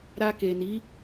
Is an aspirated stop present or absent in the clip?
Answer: absent